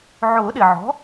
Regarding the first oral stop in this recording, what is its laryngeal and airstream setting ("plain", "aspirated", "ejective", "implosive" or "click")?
implosive